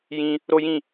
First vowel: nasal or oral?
nasal